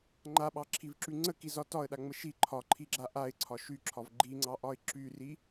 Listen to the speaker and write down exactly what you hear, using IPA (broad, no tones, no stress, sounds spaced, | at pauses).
ŋ͡ǃ a ɓ ɑ ǁʰ i v ǁ y ŋ͡ǀ ə k i z ɒ t ɒ ə̯ ɗ a ŋ͡m ə ʃ i ǃʰ ɒ ǃʰ i ɡ͡ǁ a ʔ a ɪ̯ ǀʰ ɒ ʃ y ǁʰ ɒ v ɡ͡ǃ i ŋ͡ǀ ɑ ʔ ɒ ɪ̯ ǁ y r i